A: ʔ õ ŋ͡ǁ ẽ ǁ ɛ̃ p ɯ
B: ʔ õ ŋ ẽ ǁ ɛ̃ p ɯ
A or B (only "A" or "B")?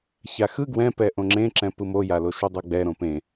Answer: A